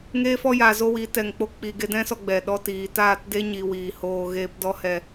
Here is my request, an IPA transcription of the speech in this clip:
ŋeː˦fɔ˦ jaː˧zo˦wi˨˦ tɛ˨ŋk͡po˧ k͡pi˨ɡe˧dɛ̃˦sɔ˧ ɡ͡bɛ˨ɗɔ˧tiː˨taː˦˨t de˦ ɲi˧wiː˨hoː˧ɣeː˦p dɔ˦hɛ˧

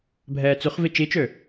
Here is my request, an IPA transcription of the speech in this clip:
bʱɛːt͡syχvi t͡ʃit͡ʃø

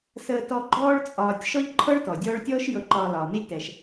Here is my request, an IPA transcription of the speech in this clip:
səː˨tɔ˨ɡ͡ǃɔː˦ɭ t͡sʼɒː˨tʲ ʃɔ˥ʎǃʰɤ˥ɭtɔ˩ dʲɔː˦ɭtʲɔː˥ʃ jɤ˨ǃɒː˨ lɒː˩ni˦lʲtɛ˩ʃ

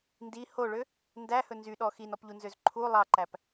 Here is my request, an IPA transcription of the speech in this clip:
ndi hoɭø | ndæhɵ nzyɗɔ xinɔpʎunzøz ǃʰu lˠɑǃæp

